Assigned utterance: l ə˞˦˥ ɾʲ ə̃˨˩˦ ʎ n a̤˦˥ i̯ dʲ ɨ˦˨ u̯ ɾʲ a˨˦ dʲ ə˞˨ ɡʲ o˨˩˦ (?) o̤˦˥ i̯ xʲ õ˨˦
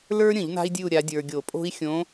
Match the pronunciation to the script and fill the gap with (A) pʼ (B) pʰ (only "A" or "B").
A